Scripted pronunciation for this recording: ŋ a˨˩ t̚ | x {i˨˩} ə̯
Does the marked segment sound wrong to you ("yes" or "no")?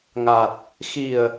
no